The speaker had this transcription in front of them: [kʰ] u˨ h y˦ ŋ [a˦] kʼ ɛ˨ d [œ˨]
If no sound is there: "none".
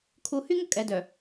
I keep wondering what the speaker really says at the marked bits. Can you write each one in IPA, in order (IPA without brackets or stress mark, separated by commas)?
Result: kʰ, ə˦, œ˨